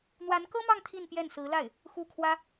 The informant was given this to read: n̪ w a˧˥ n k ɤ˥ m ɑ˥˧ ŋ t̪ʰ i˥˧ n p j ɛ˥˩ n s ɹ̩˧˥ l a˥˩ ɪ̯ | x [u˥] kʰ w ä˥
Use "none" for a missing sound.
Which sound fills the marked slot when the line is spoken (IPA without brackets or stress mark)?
u˥˩